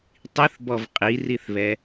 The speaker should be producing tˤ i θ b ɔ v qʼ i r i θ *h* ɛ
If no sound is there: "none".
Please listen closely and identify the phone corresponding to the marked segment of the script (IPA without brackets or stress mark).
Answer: β